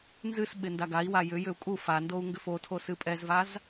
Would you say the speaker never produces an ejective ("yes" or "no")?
no